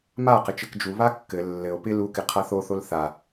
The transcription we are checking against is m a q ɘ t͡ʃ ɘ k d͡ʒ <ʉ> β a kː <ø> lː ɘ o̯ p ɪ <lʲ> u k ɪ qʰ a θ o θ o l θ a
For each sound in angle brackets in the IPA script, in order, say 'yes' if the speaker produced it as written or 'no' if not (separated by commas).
no, no, no